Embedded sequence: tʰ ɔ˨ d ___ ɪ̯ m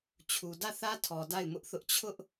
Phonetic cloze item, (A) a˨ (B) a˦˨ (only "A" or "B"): B